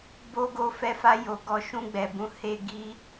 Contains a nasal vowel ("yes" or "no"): yes